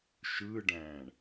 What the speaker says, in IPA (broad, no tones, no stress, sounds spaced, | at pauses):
ʃ ɯː ɖ æ̃ː ɳ